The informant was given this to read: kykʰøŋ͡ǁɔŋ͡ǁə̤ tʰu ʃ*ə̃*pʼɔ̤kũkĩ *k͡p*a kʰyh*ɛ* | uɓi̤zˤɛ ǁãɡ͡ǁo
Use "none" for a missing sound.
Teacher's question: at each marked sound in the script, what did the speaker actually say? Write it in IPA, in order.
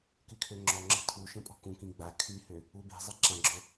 ə̃, ɡ͡b, ø

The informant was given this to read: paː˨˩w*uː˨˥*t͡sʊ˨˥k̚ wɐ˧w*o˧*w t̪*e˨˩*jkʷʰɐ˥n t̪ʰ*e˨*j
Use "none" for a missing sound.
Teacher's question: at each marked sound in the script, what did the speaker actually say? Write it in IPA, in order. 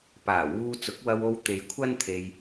uː˧, o˧, e˨, e˧

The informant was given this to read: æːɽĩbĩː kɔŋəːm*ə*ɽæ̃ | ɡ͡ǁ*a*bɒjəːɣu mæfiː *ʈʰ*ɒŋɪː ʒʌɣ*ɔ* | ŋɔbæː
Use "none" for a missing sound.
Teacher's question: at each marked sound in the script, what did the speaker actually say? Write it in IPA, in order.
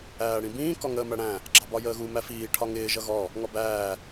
æ, ɑ, ʈʰ, ɔ

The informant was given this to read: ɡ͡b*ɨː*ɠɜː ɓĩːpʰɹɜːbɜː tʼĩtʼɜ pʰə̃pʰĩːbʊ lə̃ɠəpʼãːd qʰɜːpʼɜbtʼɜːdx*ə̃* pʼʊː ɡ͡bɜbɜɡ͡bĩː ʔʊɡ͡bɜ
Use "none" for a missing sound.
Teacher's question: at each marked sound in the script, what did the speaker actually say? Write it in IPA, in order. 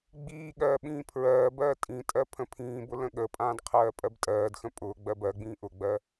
iː, ə̃

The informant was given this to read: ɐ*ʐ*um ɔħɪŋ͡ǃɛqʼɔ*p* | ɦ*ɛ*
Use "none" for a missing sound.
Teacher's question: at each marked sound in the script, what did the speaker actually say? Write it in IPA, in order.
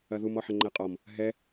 ð, m, ɛ

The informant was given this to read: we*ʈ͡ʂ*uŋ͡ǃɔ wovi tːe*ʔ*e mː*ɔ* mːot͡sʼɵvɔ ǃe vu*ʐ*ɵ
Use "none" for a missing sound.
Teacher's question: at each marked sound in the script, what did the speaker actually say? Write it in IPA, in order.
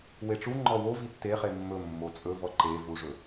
ʈ͡ʂ, χ, ɵ, ʐ

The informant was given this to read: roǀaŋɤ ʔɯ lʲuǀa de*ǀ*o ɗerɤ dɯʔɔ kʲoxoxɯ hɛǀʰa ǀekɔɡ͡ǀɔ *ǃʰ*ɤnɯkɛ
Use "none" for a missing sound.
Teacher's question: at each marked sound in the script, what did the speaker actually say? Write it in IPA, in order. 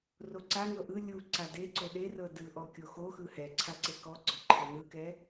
ǀ, ǃʰ

